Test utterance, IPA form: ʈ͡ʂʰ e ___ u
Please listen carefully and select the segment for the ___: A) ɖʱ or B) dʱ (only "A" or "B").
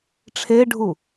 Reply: A